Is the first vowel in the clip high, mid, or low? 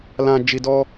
low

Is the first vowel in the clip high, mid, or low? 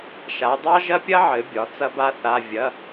low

